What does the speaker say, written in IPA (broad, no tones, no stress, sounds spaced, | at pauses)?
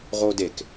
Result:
ʁ o d e k